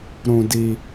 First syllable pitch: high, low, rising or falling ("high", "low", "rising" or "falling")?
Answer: low